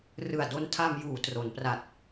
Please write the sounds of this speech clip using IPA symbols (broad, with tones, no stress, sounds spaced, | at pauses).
r ɯ˨˩ a̯ d o˧ n tʰ a˧ m j uː˩˦ t r o˩˦ n p r a˨˩ t̚